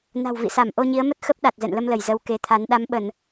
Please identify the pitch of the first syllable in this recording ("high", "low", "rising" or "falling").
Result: low